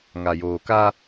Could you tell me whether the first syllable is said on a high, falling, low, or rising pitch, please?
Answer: low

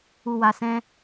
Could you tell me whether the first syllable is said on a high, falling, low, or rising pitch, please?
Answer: low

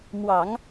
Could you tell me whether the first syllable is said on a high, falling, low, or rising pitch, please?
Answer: low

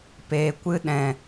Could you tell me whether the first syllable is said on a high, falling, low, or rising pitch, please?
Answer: low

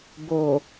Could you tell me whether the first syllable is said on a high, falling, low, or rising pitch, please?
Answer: low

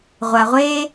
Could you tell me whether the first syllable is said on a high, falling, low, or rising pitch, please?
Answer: low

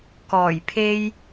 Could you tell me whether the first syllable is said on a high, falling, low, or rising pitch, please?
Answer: low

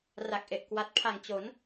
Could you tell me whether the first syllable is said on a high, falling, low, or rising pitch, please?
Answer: low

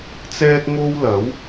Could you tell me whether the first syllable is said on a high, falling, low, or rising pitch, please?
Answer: high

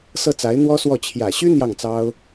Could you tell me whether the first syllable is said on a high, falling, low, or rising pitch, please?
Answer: falling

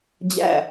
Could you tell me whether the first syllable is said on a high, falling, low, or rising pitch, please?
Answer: falling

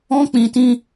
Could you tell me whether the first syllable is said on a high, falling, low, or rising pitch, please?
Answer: high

